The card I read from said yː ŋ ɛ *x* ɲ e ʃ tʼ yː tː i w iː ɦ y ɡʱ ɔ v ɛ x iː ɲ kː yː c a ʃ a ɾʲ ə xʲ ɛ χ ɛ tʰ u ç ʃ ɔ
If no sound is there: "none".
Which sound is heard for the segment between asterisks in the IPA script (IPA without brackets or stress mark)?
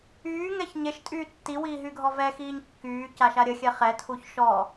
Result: ç